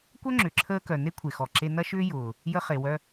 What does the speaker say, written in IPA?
kʷœ˥ ŋ͡ǁʏ˩ǁʰəː˧kœ˩ ne˥kʷʰe˩xɔ˩ ǁe˧nɐ˥ʃʏː˥ jʊː˩ | jə˧χe˩wœ˧

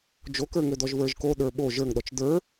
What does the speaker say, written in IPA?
d͡ʒokə˞ŋø dɔʒvə˞ʒko ɗə˞ɓo ʒə˞ŋɗɔt͡ʃ də˞

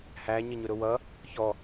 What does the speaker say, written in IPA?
hæ ɲʌɲʊɾʊwʌ | çɔ

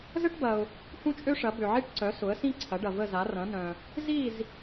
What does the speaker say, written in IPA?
zə˥ʈbɐ˨ʊ̯ | hũ˥t͡ʃʼø˥ʂɐ˩˥ bø˨ʕi˥ʈǀœ˩˥ sʊ˩˥ə̯sĩ˥ǀʰɐ˩˥ɖɐ˨ və˥˨za˩˥ rɐ̃˩˥nœ̃˨ | zi˥˨z

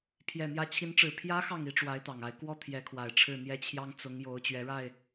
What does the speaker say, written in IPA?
pʰjɛ˨˩n̪jä˧˥ t͡ɕʰi˧˥nʈ͡ʂɻ̩˨˩ pʰjä˧˥ xɑ˥˩ŋi˧˥ʈ͡ʂwa˧˥ɪ̯ t̪ɑ˨˩ŋa˧˥ɪ̯ kwɔ˥˩ t̪ʰjɛ˧˥kʰwa˨˩ɪ̯ʈ͡ʂʰɻ̩˥˩ n̪jɛ˥t͡ɕʰjɑ˥ŋ t͡sʊ˧˥ŋ jo˧˥ʊ̯t͡ɕɥɛ˧˥ɻa˥˩ɪ̯

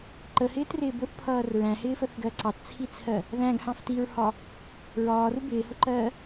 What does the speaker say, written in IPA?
ǃəhɪːtrɪː bʊθpʰʌːr ɹæ̃hɪːfəθɡɜ ǀɑtt͡sʰit͡sʰɜ | ðæ̃ɡhɑ̃f tiɹhɒ | ɹɒːru bɪːhʊǃɜː

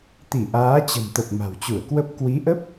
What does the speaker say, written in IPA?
t̪i˧˩ʔaː˨˦t͡ɕə̤˨˩mt̪ə˨˩p̚ ma̤˨˩wt͡ɕu˧˩ə̯kwə˦˥p̚ kwi˨˦ʔə˦˥p̚

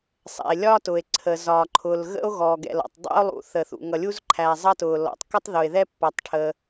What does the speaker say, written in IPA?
sˤɛ̰˩e̯lʲɒː˥tʊ˩e̯ ǀʰə˩zɒː˩ǃʰʊː˩l ɣə̰˥o̯ɣɔ˩ɡɛ̰˩lɔ̰˩tˤ dˤɛ̰˥o̯lˠṵ˩θə˩ θṵ˩ŋʌ˩lʲu˥zǃʰæ˩ zˤʌ˥tʊː˩lɔ̰˩tˤ kə˥tˤðʊ˩e̯ðɛ˥ pːʌ˩tˤʈʰə˩

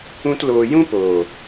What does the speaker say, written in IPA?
ũ˦tloː˧ jũ˦poː˨

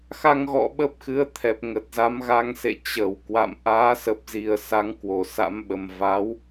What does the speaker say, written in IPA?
xa˧ŋɣɔ̰˧˨ ɓə˦˥p̚xɨ˨˦ə̯t̪ʰɛ˨˩p̚ ŋə˨˩t̚za˨˦mɣa˧ŋsḛ˧˨ t͡ɕə˧˩w kwa̰˧˨m ʔaː˨˦sə˨˩p̚zi˨˩ə̯ sa˨˦ŋkwo˧˩ sa̰˧˥mɓə˨˩m va˨˦w

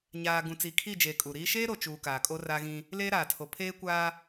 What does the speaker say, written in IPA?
ɲaː˨ ɡũ˨t͡siː˨kʰi˦˨d͡ʒeː˨ kʼu˨ɾiː˦ ʃeː˦ɾo˨t͡ʃuː˨ kaː˨kʼo˦raː˦ɣĩ˦ | leː˦ɾaː˨tʰo˨ pʰeː˦kʷaː˦

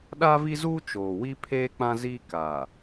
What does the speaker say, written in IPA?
ɗa˦vi˦zuː˦ t͡ʃoː˨wi˦ pʰeː˦k͡pã˦ziː˦ kaː˨

